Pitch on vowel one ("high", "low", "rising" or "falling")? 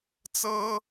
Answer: high